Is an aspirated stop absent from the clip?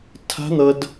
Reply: no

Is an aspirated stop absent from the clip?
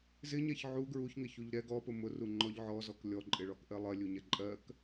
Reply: yes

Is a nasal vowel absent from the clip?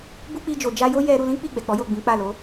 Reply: no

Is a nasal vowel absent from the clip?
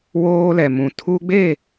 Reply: no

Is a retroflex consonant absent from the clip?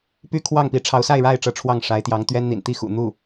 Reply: no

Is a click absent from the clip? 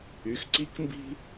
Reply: no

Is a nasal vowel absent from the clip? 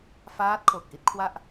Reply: yes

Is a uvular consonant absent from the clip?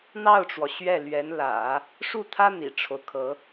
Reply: yes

